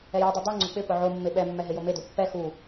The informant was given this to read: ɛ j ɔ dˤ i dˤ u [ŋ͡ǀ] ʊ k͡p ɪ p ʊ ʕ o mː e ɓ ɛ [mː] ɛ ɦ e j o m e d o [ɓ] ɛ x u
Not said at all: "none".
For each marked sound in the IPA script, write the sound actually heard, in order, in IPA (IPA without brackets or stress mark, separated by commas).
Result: ŋ͡ǀ, mː, pː